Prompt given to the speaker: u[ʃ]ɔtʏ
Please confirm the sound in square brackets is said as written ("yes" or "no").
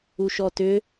yes